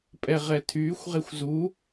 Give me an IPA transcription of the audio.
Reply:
pʼɛʁɛtʰyːxʷ ʁexʷzu

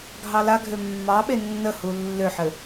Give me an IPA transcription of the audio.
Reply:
ɡʱɑlaɡʱø mːɑɓe nːəhu lːøħɘ

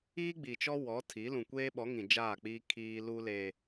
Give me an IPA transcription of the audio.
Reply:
iː˦ɡ͡bi˨t͡ʃɔ˦ wɔ˨˦tʰi˨˦ lũ˨kʷeː˦ɓɔ˨˦ŋĩ˨ d͡ʒaː˦˨k͡piː˦ kʰiː˦ lu˦le˦

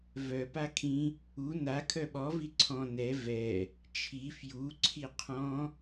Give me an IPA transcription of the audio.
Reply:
vœ pakʰĩ | u na kʰœɓɔ viǀʰɔ̃ nɛ vɛ | t͡ʃʰi fju ǀʰiqʰɔ̃

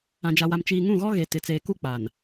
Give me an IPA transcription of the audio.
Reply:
ã˨d͡ʒa˨wa˨m t͡ʃiː˨ŋũ˦˨ɣɔ˦ ɣe˨ tɪ˨ t͡seː˨ku˦k͡pa˨n

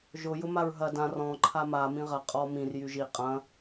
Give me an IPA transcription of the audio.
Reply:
ʒʊ jʊmaɹɦɐ dã rɔ̃ ǃʰama mĩʁɐ qʼɔ mĩr jyʒi qʼɐ̃

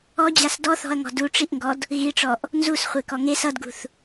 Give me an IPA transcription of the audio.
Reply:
ɔd͡ʑas dɔθɔ̤ɐ̯ŋɔ̤ duʈ͡ʂiʔŋɡɔd | ɣiʈ͡ʂɔʔ | nzusχʷekɔ ŋes ʌdɡṳθ

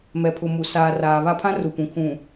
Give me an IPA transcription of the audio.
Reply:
mɛ˨pʰʊ˨ mu˨ saː˨raː˨βa˦pʰã˦ ru˨pũ˨kʰũ˨

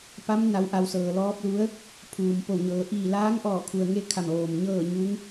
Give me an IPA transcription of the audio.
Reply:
pa˧˥mna˩˧wʔa˩w sɤː˩lɔː˧˥p̚lu˧˥ə̯ | pʰuː˩mpo˧˩wɲɤː˩˧ ʔiː˧˩laː˧˥ŋʔɔː˧˩kʰu˩ə̯ ŋe˥˨kʰa˧˩m ʋoː˩mɲɤː˥˨ ɲu˧˥ŋ

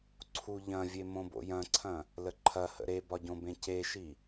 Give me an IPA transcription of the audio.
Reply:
ǀʰuʎɐ̃vʲe mõbo̰jɐ̃ǀʰɐ̃ | ləǃʰɐhə̰ ɾebɒɟõ bẽceʃi

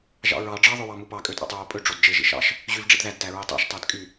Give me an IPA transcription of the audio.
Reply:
ʒɑ̰ɹɑ ɖ͡ʐɑ ðˤøwɑmupɑ kʼøtʼɑ̰tˤɹopʼø ɖ͡ʐodd͡ʒe ʒḭʃɑ̰ʃ | ʑyvɖ͡ʐḭdðæd tæɹetˤæ̰ʃ tˤædkʼy

